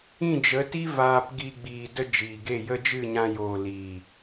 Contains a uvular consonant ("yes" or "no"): no